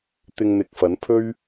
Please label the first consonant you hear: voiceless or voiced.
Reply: voiceless